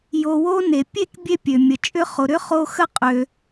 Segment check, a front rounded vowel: present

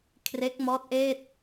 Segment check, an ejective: absent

